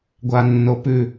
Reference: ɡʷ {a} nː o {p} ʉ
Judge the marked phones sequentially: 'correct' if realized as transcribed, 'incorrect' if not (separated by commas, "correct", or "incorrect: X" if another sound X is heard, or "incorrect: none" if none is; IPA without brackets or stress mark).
correct, correct